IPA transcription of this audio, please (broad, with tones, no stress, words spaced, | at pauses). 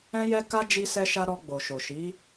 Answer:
ɛ̃˦jɛ˦ka˦ d͡ʒi˧sɛ˧ʃa˧ ɾɔ˧ɡ͡bo˨ʃo˨ ʃi˨˦